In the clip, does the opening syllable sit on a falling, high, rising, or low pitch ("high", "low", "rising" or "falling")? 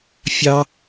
high